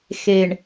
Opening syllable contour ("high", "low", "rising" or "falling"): low